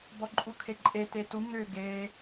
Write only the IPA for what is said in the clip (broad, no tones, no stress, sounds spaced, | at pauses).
b ɔ ǃʼ u kʰ e ǃʼ e t e t u ŋ ʏ ɡ e